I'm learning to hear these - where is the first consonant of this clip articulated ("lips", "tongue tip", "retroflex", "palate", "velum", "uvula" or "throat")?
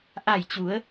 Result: throat